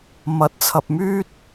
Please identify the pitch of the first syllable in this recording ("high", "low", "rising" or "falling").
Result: rising